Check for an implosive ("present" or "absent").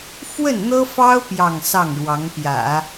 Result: absent